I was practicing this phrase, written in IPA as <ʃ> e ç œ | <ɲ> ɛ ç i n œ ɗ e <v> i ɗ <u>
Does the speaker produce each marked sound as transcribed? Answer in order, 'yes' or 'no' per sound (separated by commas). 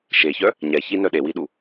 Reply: yes, yes, no, yes